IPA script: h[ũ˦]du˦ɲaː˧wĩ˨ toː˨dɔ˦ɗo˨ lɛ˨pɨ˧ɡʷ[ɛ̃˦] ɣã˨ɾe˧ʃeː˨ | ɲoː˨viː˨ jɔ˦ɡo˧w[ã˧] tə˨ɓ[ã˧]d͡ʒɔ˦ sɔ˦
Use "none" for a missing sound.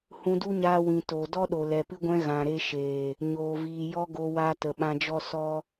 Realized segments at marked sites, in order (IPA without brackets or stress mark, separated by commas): ũ˧, ɛ̃˧, a˧, ã˧